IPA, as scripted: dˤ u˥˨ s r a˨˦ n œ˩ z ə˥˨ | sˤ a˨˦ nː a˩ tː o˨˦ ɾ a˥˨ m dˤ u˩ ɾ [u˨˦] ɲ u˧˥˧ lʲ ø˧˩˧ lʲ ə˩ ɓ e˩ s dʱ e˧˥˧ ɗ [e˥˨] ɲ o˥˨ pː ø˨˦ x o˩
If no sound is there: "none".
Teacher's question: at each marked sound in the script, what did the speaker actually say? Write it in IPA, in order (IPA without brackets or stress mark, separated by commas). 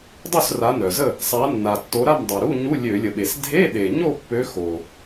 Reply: u˧˥˧, e˩